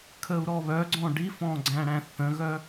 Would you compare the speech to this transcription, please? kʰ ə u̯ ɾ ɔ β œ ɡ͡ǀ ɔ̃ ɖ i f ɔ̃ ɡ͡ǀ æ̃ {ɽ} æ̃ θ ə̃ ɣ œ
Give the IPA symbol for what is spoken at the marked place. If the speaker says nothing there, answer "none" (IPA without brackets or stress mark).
ɽ